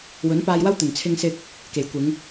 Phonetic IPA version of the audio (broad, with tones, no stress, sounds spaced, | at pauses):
w ɵ˨˥ n p aː˧ j w ɐ˥ w t̪ ɵ˨˩ n t͡sʰ ɪ˧ ŋ s ɪ˧ k̚ | k e˨˩ j kʷ ɪ˨˧ ŋ